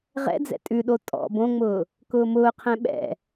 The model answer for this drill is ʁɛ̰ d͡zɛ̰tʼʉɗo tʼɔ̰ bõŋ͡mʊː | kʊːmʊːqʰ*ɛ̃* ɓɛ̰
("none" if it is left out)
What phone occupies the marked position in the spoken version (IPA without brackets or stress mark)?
ɛ̃